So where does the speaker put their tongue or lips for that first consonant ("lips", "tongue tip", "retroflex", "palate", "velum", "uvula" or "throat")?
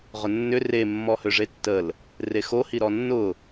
uvula